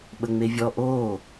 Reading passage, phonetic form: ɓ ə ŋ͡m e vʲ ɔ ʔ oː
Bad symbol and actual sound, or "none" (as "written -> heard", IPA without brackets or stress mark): none